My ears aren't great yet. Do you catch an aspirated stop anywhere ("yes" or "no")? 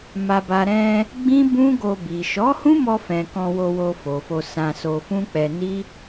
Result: no